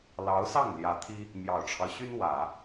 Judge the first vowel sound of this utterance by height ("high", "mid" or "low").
low